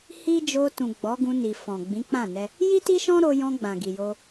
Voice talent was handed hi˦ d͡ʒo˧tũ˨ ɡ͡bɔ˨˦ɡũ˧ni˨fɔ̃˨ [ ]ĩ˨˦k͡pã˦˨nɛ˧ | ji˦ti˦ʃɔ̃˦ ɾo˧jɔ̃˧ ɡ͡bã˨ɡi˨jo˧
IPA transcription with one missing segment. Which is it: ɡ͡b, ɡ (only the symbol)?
ɡ͡b